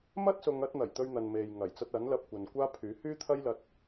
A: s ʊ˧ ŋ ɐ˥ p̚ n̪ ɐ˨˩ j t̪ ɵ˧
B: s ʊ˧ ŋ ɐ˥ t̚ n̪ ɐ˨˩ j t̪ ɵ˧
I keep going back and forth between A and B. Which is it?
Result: B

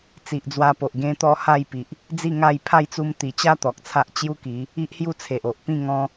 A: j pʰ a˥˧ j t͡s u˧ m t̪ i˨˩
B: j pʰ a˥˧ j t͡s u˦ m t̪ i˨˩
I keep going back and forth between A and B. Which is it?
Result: A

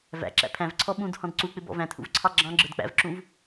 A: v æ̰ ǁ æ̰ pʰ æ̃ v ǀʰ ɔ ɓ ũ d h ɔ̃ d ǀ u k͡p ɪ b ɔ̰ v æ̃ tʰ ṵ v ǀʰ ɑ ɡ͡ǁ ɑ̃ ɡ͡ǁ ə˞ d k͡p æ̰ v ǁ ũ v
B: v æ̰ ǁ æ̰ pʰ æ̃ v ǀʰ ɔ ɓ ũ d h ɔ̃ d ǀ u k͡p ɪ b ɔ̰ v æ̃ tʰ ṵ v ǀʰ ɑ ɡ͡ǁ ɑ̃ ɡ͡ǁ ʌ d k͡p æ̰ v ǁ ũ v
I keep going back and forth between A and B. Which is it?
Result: A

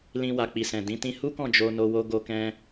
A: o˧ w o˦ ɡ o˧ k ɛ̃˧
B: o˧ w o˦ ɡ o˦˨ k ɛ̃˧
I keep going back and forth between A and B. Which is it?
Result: A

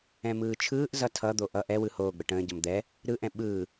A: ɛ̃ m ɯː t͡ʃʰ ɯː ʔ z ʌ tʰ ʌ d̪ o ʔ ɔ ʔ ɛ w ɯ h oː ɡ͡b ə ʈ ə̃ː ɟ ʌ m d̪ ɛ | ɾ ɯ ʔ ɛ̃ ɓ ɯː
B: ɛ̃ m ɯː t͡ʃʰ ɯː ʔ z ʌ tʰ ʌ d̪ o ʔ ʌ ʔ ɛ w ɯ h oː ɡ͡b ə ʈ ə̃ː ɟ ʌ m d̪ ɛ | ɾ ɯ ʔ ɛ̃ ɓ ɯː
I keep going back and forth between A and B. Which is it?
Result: B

